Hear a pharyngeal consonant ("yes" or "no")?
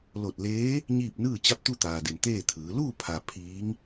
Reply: no